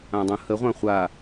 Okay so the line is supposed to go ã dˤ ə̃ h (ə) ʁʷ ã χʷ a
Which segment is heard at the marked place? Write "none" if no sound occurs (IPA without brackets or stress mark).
ə